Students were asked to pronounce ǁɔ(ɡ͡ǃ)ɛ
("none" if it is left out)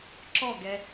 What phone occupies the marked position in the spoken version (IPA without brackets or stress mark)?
ɡ